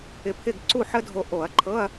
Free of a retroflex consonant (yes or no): yes